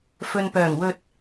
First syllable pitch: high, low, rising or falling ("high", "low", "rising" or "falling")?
low